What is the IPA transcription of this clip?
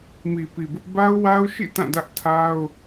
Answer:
m i˨ p i˨ b ʊ˦ ʔ b a˦ ʊ̯ w a˦ ʊ̯ ʃ ḭ˦˨ t ã˦˨ d ä˦ ʔ tʰ a˦ ʊ̯

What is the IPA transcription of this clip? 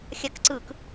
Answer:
xʲ a k ǀ ɯ k

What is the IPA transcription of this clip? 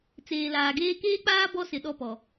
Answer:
t͡s eː˨ l aː˨ ɡ eː˦ k eː˦ k͡p aː˦ b ɔ˦ s ɪ˨ ɗ ɔ˦ p ɔ˨

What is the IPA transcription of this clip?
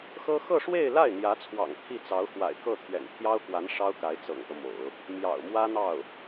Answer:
x ɤ˥ x ɤ˥˧ ʂ w e˥˧ ɪ̯ l a˥˩ ɪ̯ n̪ j ä˧˥ t͡sʰ w ɑ̰˨˩ ŋ t̪ʰ i˥˩ t͡s ɑ˧˥ ʊ̯ x w a̰˨˩ ɪ̯ k ɤ˥˩ t̪ʰ ɥ ɛ̰˨˩ n pʰ j ɑ˥ ʊ̯ k w a˧˥ n ʂ ɑ˥ ʊ̯ k a˧˥ ɪ̯ t͡s ɤ̰˨˩ ŋ t̪ ɤ˦ m o̰˨˩˦ ʊ̯ | m j ɑ̰˨˩ ʊ̯ m w ä˥ n̪ ɑ˥˩ ʊ̯

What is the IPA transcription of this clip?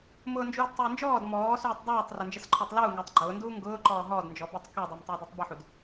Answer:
m ʊː n d͡ʒ uː d tˤ ʊː n d͡ʒ ɔː d m ɔː s uː tˤ dˤ uː tˤ r ʊ n d͡ʒ ə s ǃʰ ɔ tˤ l uː ŋ əː tˤ ɡ͡ǃ ʊː n d uː ŋ ɡ ʊː ǃ ɔː ɦ ɔː d n d͡ʒ ɔ b ə tˤ k ø dˤ i m tˤ ʊː d ʊ tˤ b ə ħ u d

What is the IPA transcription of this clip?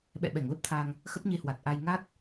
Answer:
ɓ ɛ̰˧˨ ɓ ɛ˧˩ ŋ l ə˦˥ p̚ t̪ʰ a˧ ŋ | x ə˦˥ p̚ ɲ e˧ h w a˨˩ t̚ ʔ a˧ j ŋ a˦˥ t̚

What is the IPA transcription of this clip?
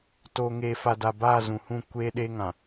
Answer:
t oː˨ ŋ eː˨ f a˨ d a˨ b aː˦˨ z ũ˨ h ũ˦˨ kʷ eː˦ ɗ eː˦ ŋ ã˨

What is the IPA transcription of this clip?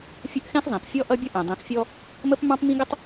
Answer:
fʲ ə˦ ʔ x ɛ̃˦ x zˤ ĩ˨ p fʲ ɔ˦ ʔ ʌ˦ bʲ ʌ˦ ʔ ɛ̃˨ dˤ ĩ˨ x fʲ ɔ˦ | m ə˦ p m ɑ̃˦ p m ĩ˦ ɡ ə˦ tˤ

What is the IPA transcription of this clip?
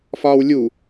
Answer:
f ɒː w lʲ u

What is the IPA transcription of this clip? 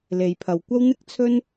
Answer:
l e˨ j pʰ ɐ˨ w kʷ ɐ˥ w n̪ ɪ˥ k̚ t͡sʰ ɵ˥ n

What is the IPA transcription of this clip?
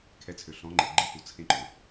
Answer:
kʰ ɛ˧ t͡sʰ ø˨ ɬ ɔ̃˨˦ ŋ͡ǃ e˨ ɡ͡ǃ i˨˦ h u˨ t͡sʰ ẽ˧ ǃ ʊ˨

